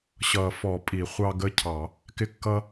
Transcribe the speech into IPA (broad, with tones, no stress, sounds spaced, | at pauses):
ɕ ʌ˨˩˦ f ɔ˨˩˦ pʼ i˨˩˦ χʷ ɑ˦ ɡ ə˦ cʰ ɑ˨˩˦ | k ɪ˦ kː ʌ˦